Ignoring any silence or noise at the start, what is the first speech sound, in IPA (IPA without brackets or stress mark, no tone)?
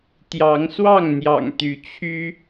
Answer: t̪